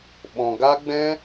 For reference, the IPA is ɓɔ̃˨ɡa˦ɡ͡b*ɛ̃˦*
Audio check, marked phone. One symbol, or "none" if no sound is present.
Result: ɛ̃˦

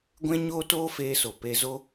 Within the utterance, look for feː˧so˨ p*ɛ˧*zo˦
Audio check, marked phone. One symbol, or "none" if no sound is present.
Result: e˧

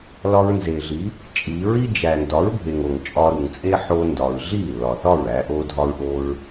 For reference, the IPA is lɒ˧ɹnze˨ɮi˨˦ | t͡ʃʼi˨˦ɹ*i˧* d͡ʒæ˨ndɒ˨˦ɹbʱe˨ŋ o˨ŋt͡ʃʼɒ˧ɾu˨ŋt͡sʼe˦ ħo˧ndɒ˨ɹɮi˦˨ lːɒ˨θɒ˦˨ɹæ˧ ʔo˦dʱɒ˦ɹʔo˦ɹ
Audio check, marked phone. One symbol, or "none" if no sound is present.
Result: i˦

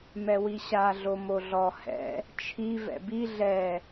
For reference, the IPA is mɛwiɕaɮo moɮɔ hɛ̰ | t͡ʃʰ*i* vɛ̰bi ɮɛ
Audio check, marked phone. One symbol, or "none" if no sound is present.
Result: i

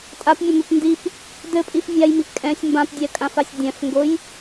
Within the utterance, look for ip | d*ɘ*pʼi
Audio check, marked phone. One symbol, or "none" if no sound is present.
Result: ɘ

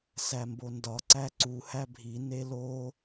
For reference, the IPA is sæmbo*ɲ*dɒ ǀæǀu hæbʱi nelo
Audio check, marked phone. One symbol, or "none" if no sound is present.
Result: n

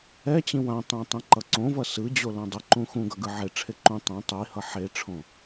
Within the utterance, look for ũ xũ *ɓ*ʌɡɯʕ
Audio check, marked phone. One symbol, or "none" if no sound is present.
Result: ɡ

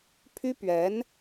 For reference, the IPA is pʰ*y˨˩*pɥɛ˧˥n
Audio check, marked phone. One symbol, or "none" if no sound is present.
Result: y˥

